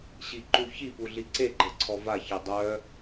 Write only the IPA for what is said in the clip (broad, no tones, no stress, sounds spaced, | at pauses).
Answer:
ɕ i ǃ u ç i p u ɮ i ǀ e ɡ͡ǃ ə ǀʰ ɔ v a ç e dˤ œ